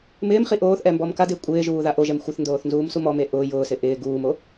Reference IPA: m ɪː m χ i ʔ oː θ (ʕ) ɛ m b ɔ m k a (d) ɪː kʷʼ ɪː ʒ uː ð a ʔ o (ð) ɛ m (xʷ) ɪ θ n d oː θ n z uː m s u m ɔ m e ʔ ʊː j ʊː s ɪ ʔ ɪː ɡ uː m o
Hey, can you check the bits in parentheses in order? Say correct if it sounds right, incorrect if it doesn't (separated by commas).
incorrect, correct, incorrect, correct